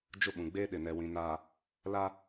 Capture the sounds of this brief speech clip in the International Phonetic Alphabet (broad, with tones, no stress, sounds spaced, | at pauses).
d͡ʒ ʊ˦˨ ɓ ũ˨ ɡ͡b eː˦ ɗ ɪ˨ n ɛ˨ w ĩ˨ n a˨ | l a˦